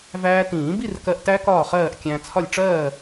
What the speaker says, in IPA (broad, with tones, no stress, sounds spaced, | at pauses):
v æː˧ t ĩː˨˩˦ b i˥˨ r k ɜ˧ ʔ t æ˦˥ k ɒː˥˨ χ ɜː˥˨ ʔ kʲ æ̃˧ t͡sʰ ɒ˥˨ lʲ ʈ͡ʂ ɜː˥˨